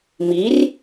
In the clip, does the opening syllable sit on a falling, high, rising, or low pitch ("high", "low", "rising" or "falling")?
rising